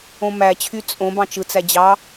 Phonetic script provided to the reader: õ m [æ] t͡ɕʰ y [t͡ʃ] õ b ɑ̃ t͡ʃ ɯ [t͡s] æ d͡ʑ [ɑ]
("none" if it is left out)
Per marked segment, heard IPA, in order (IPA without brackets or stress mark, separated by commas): æ, t͡sʼ, t͡s, ɑ